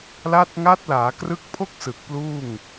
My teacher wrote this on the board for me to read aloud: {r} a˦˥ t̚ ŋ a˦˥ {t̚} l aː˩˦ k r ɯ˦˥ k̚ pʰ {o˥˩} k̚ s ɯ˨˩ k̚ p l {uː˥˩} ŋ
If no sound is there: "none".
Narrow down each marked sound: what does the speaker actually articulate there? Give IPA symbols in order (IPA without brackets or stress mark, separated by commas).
l, t̚, o˥˩, uː˥˩